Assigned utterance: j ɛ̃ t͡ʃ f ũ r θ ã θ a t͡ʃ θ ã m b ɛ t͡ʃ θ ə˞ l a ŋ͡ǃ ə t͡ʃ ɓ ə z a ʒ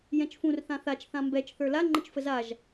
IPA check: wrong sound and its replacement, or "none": ɓ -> f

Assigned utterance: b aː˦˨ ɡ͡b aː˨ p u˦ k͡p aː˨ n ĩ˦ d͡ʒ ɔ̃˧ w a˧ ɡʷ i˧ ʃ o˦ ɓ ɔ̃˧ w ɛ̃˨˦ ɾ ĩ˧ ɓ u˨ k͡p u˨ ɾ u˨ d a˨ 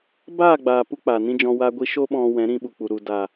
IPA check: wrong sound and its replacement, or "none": none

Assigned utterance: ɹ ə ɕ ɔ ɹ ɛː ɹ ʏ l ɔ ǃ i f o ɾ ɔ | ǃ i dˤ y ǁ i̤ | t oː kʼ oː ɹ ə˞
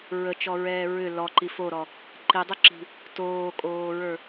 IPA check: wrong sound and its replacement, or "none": ɕ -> t͡ʃ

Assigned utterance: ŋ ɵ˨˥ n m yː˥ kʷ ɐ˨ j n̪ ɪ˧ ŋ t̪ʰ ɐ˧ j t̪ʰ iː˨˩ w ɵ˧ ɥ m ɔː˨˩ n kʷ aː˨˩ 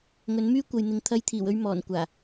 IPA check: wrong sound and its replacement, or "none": ɪ˧ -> ɪ˨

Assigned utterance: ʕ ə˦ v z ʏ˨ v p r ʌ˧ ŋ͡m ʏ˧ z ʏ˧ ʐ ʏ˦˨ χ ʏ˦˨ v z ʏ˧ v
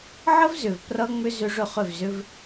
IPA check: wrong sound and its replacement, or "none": none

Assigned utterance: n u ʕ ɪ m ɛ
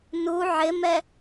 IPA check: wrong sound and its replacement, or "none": none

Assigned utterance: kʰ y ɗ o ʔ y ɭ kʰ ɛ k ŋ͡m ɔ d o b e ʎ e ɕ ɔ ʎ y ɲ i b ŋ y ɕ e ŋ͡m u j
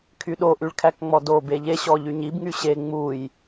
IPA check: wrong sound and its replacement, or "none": ɛ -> æ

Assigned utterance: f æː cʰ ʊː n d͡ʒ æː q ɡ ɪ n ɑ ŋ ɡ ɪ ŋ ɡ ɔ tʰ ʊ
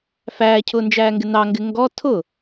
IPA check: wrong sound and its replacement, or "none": q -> ŋ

